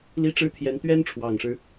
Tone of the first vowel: falling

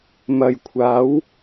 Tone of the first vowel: low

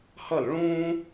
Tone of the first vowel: falling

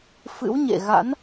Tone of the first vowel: rising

